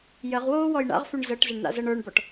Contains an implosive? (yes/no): no